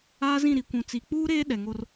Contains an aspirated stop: no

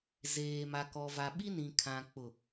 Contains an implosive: yes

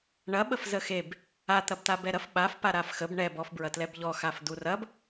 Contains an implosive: yes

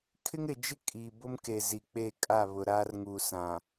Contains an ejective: yes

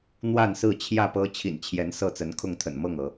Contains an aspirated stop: yes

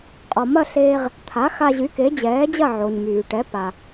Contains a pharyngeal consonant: yes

